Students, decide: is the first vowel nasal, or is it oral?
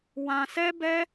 nasal